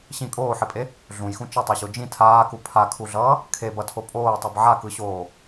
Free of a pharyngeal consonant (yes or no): no